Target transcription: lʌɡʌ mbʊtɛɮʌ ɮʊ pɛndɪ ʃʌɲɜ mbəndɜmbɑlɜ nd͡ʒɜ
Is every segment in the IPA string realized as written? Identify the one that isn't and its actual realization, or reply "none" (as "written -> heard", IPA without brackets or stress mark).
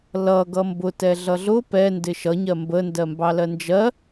none